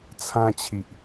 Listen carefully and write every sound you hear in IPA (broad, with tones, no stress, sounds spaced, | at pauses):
t͡sʰ ã˧ t͡ɕʰ i˨ ʔ